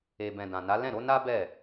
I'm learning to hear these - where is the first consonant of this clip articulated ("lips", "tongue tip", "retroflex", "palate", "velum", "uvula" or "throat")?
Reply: lips